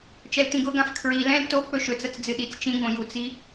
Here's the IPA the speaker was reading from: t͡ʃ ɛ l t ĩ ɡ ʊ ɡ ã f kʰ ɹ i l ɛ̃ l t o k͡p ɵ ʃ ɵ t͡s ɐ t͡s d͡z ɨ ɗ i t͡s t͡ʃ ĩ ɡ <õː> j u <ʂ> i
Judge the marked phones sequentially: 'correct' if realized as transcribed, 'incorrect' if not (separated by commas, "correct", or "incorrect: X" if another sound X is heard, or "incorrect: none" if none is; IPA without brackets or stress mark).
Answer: incorrect: õ, incorrect: t͡s